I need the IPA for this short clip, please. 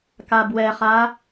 k a b w ɛ χ a

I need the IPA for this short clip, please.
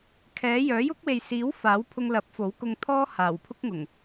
kʰ ɛː˨˥ j œː˨˥ j ʊ˥ k̚ w e˨ j s iː˨˥ w f aː˨˥ w pʰ ʊ˧ ŋ l ɐ˨˥ p̚ f o˨˥ w k ʊ˧ ŋ t̪ʰ ɔː˥ h aː˨˩ w pʰ ʊ˥ k̚ ŋ ʊ˨˩ ŋ

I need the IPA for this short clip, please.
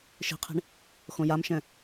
ʃ i̤ qʰ e̤ ɳ | x õ j a m ʃ ɛ̃

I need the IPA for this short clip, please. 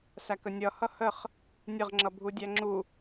s æ k ə nʲ ʌ h ʌ h ə χ | nʲ ə ʁ ŋ͡ǁ ʌ bʱ u dʲ æ ŋ͡ǁ u

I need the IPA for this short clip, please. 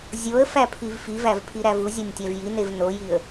zʲ o ə̯ f æ pʰ i v f i v æ v pʰ i ɾ æ v u zʲ ɒ nʲ tʲ æ v j i n e v n o j i ə̯

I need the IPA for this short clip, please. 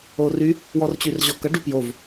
o r y | w ɔ r t͡ɕ y r ʑ ɔ k ʌ ɖ u p j o v

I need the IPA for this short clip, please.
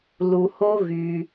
l u˩ h o˧ ɣ y˩

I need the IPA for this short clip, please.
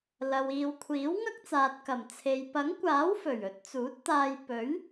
l ɐ˨ w iː˨ w kʷʰ iː˨˥ w ŋ ɐ˥ k̚ t͡s aː˨ t̚ k ɐ˨˩ m t͡sʰ e˨ j p ɐ˨˥ ŋ kʷ aː˨˥ w f ɵ˨˩ ɥ ɵ˨˥ t̚ t͡s uː˨˥ t̚ t̪ aː˧ j p ɵ˨˥ ɥ

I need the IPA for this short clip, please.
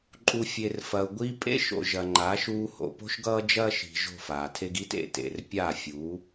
ǃʼ u˨ fʲ e˨ r f ɐ˨ ʊ̯ ɡʷ i˧ pʼ ḛ˦ ʃ o̰˨ ʒ ɐ˨ ŋ͡ǃ aː˨˦ ʃ uː˧ h o̰˨ p o̤˦ ʃ ɡ ʌː˦ d͡ʒ ɐː˦ ʃ i̤˧ ʒ o̤˦˨ f aː˨ tʰ e˦ ɡ i˦ t ḛ˨ t ḛ˨ r pʲ a˦˨ fʲ uː˨˦

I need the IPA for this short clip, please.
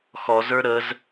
x ɔ z ə˞ ɾ ə z

